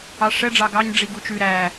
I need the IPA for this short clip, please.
ɑ ʂ ɛ ɖ͡ʐ ɑ ɡ ɑ ɲ ɖ͡ʐ i ɡ u t͡ʃ ʉ ɾ æ

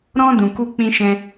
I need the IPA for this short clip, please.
ɾ ɔ̃˧ d ũ˨ k u˧ k͡p ĩ˧ ʃ ɛ̃˧

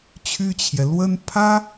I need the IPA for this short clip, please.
t͡ɕʰ y˥ t͡ɕʰ j ɛ˨ l w ə˥ n pʰ ä˥

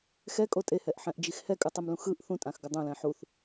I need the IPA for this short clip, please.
x ɛ kʼ o tʼ e h ɛ ʔ ħ ɛ̃ ʔ d͡ʒ i x h ɛ kʼ ɯ tˤ i m l ũ x ɯ ʔ θ ũ tʼ ã x ɡ ɯ dˤ õ l ɛ̃ ħ u θ

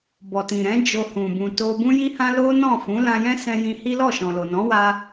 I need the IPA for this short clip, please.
b ɔ˨ t ĩ˨ ɾ ɛ̃˨˦ d͡ʒ o˧ h ũ˨ b ũ˨ t o˧ b ũ˦ j i˦ h ã˦ l o˦ n ɔ̃˦˨ f ũ˨˦ l ã˧ j ɛ̃˦ s ɛ̃˧ j ĩ˧ h i˦ l ɔ˦˨ ʃ ɔ̃˨ l o˨ n ɔ̃˨˦ w a˧

